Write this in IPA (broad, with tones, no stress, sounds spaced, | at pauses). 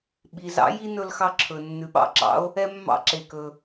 ɓ i˩ z ɑ̰˧˥ j i˥ n ɵ˧ l x ɑ˧ ǁʰ ɵ˩ nː ʉ˩˧ ɓ ɑ̰˧ ǁ ɑ̰˧˥ o̯ | ɛ˧ mː ɑ̰˧ ǁ e˩ k ɵ˩